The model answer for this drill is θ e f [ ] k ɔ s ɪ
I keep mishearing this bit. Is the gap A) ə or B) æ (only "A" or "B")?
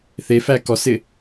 B